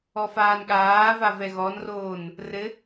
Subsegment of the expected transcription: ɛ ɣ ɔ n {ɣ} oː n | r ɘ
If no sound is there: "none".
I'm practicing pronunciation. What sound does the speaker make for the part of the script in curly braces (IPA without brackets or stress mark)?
r